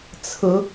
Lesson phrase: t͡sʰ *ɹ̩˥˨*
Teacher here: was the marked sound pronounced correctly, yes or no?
no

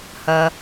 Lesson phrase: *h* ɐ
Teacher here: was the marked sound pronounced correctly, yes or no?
yes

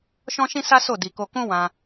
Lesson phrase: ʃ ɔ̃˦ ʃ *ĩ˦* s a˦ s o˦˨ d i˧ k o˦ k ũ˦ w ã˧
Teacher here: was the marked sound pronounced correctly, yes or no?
yes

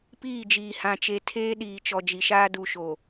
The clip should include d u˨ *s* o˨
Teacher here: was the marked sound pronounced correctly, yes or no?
no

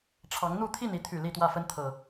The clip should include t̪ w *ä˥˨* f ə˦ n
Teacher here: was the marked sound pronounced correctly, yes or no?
yes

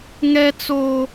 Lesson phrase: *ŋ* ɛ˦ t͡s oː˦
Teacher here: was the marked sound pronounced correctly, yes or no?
yes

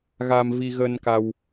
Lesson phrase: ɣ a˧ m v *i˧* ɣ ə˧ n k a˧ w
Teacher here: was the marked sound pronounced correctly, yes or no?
yes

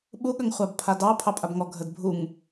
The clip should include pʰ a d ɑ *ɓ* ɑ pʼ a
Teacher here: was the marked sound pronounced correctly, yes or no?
no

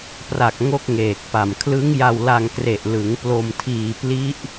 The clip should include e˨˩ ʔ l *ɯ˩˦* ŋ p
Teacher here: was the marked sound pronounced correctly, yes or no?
yes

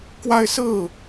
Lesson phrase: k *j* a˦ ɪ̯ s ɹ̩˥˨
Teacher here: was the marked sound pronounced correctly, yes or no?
no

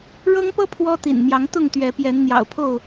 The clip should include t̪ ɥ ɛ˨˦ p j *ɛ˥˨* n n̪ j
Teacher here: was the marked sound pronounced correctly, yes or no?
no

